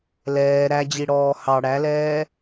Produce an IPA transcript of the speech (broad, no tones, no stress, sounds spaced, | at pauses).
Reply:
l ɛː ɾ æ d͡ʑ i ɽ ɔː h ɑ ɽ æ l ɛː